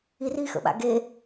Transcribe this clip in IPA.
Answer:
i r i x ə̰ ɓ a̰ ɡ e

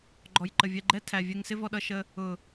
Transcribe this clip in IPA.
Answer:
ɡ͡ǃ ɔ˨ j ǃ ə˨ vʲ ɛ˧ ɡ͡ǃ ɛ˦ tʰ æ˨ vʲ ɛ˧ ŋ s ɪ˦ v ɔ˧ ɗ ʌ˧ ʃ ə˧ | ʊ˨

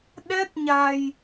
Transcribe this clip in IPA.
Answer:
ɗ ɛ˦˥ t̚ ɲ a˨˩ j

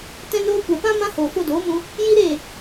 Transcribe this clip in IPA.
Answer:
t ɛ̃˧ n oː˧ kʷ ɛ˨ p ã˦ m ã˧ h oː˨ f o˧ d oː˨˦ m ũ˧ | j i˦ ɾ e˦˨

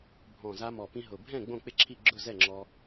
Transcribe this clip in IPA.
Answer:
bʱ ɔ̃˨˩ z a˧ m ɔ˨˩ p ĩ˧ ɦ ʊ˨˩ bʱ ɛ̃˥˨ ɡ͡b õ˥˨ k͡p ɪ˥˨ ǁʰ i˥˨ ɡ͡ǁ ʊ˥˨ z ɛ˥˨ ŋ͡ǁ ɔ˧

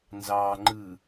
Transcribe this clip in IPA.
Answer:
n z ɑ ŋ͡ǃ ɯ

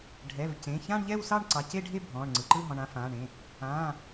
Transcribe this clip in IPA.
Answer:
ɖʱ ɛ˩˧˩ v c ẽ˩˧˩ ç ã˥˧ ɳ ʎ ɛ˥˧ w s ɑ˥˧ ɳ ǀ ɑ˩˧˩ c e˥˧ ɖʱ e˥˧ bʱ ɔ̃ː˩˧˩ ɳ ŋ͡ǀ ɯ˩˧˩ ǃ ɯ˥˧ ɦ ɔ̃˩˧˩ ɳ ã˥˧ f ãː˩˧˩ ɳ ẽ˩˧˩ | ãː˩˧˩

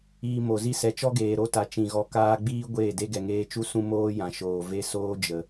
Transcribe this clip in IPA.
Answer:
iː˧ m o˨ z i˧ s ɛ˨ t͡ʃ ɔ˦ ɡ eː˨ ɾ o˦ t a˨ t͡ʃ ĩ˨ ɣ ɔ˧ k aː˧ ɡ͡b iː˦ ɡʷ eː˦˨ d e˦ ɡ ɛ˨ ŋ eː˧ t͡ʃ u˦ s ũ˦ m oː˦ j ã˨ ʃ oː˨ v e˦ s oː˦ d͡ʒ ə˨

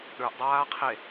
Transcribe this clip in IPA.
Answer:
ɗ ə˞ ʔ dˤ aː qʰ e

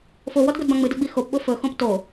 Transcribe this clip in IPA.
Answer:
f o w ɔ d ɡʷ e d b ã ŋ͡m ɨ d ɵ ɡ͡b i x o p ɓ o f ɵ x õ p t o

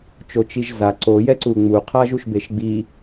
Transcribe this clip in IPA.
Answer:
t͡ʃ o t͡ʃ i ʒ z a ǀ o j ɛ ǀ u ŋ͡m u qʰ a ʒ u ʃ b e ʃ ɡ͡b i

